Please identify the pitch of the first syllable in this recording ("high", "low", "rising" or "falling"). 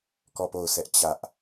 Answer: falling